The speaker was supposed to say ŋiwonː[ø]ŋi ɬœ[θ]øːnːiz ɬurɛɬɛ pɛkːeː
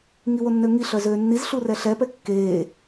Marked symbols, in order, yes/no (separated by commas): yes, no